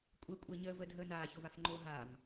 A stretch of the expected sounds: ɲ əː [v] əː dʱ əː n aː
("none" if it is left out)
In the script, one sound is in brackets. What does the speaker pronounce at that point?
v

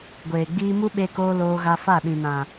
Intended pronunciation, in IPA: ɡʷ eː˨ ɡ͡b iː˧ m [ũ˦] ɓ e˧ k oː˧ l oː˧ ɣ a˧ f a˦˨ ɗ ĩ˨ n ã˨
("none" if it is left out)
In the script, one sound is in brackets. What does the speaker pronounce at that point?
u˦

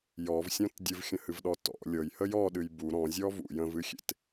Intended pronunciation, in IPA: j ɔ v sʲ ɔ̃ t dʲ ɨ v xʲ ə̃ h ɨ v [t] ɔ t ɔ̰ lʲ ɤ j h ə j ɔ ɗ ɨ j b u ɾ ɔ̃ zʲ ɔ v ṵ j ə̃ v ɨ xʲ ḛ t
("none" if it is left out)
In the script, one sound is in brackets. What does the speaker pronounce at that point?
ɗ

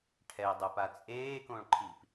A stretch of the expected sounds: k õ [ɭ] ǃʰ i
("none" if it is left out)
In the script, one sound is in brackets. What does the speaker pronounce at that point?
ɭ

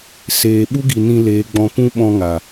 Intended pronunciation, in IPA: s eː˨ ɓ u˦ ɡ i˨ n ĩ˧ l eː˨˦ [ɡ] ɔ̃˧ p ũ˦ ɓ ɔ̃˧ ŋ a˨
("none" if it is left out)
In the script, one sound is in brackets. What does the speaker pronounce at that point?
ɡ͡b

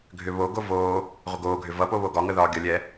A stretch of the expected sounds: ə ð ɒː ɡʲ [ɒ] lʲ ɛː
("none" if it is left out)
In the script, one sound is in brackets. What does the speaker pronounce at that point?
ʌ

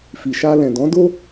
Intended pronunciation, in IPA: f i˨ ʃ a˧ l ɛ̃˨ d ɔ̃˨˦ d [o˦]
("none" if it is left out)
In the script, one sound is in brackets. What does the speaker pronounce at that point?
o˦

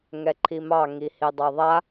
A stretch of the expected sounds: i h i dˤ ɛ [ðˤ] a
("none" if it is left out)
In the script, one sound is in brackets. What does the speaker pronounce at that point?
ðˤ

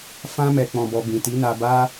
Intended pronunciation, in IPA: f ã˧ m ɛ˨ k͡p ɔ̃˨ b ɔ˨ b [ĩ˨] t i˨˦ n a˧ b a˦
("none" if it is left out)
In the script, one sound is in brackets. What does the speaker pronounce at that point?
ĩ˨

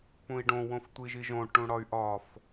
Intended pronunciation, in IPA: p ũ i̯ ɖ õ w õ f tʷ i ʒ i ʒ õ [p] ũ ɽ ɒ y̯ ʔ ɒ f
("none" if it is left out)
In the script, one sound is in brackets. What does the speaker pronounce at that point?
ʈ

